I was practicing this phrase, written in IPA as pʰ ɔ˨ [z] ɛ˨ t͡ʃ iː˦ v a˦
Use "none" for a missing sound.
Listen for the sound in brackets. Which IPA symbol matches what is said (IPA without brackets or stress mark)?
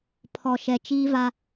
ʃ